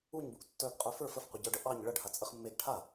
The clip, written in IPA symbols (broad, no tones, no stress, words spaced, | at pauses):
uɲbuʔ tːœɡqʼœ fə˞f əfqʷəɟə˞ɖə ʔɑɲ ɭəɖhat͡sʼəχ mːeɡ ʈʰa